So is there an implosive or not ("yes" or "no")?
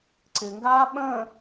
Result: yes